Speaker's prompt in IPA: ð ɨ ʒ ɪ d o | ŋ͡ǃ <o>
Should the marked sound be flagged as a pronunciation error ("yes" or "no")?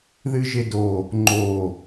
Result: no